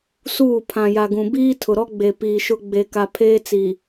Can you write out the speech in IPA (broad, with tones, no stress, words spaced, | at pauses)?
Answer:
suː˦˨ pʰã˨ja˨ ɡũ˨biː˦tʰʊ˨ɾɔ˦ ɡ͡be˨piː˨ʃʊ˦ ɡ͡be˨ka˨pʰeː˦t͡si˨